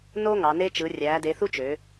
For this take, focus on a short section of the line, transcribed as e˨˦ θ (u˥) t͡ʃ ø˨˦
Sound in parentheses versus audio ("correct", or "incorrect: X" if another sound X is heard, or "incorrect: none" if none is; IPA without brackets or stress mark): correct